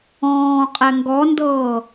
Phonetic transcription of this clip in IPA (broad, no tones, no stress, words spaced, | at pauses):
ɔ̃ː qʼɛŋɡɔndɤː